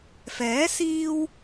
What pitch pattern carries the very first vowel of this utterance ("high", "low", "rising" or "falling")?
rising